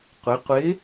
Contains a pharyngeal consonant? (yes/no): no